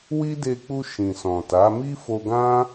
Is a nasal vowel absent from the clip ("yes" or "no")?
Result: no